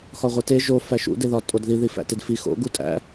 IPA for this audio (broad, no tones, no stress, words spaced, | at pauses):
xɒʁʷete ʒo fæʃṵ deðɒtʼodði ðifæ̰tedfi xo̰ ɡutʼæ̰